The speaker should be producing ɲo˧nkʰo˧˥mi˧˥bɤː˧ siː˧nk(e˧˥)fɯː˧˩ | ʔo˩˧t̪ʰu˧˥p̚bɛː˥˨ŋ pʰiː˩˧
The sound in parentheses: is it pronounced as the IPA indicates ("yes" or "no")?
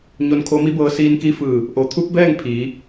no